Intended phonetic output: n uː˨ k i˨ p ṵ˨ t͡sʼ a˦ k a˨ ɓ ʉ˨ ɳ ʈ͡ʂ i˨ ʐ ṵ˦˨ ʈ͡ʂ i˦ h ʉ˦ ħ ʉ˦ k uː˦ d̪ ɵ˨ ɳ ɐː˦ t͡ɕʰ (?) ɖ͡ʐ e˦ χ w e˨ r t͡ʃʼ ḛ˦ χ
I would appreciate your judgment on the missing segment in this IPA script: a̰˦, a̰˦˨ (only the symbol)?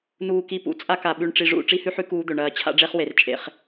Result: a̰˦